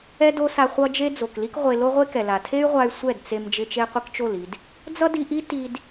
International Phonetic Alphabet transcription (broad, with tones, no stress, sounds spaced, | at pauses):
ɛ˦ d o˦ s a˧ χʷ ʌ˦ d͡ʒ e˦ d͡z o˨ k l i˦ k ʁʷ e˧ l o˦ ʁʷ e˦ k ɛ˨ l a˨ tʰ e˦ y̯ ʁʷ a˧ y̯ sʷ ɛ˦˨ d t͡s e˧ m d͡ʒ ɪ˧ t͡ʃ e˧ qʷ ɪ˦ k t͡ʃ o˦˨ l i˧ d | d͡z ʌ˦ d i˧ ʔ i˦ t i˧ d